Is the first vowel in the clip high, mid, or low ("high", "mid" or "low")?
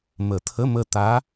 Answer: mid